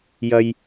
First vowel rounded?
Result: no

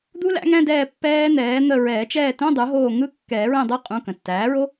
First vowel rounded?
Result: yes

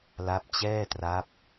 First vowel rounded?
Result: no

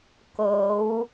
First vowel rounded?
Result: yes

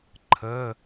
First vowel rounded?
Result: no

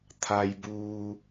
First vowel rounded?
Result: no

